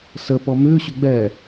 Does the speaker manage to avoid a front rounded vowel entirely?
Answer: no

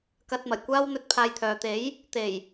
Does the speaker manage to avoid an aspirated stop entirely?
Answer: no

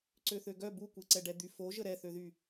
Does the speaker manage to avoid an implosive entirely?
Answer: yes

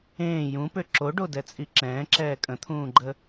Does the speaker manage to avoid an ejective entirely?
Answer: no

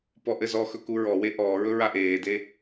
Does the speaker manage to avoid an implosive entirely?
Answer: yes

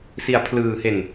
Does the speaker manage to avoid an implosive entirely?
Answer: yes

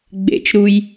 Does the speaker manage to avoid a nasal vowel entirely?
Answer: yes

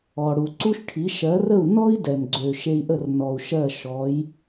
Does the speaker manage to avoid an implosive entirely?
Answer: yes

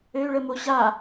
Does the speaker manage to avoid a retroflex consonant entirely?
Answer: no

